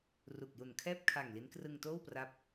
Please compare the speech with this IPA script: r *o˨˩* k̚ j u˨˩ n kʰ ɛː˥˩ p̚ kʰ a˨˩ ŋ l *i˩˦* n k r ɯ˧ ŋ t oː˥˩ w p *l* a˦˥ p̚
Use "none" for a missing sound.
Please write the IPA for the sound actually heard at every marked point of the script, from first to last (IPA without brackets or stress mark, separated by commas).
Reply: u˨˩, i˦˥, r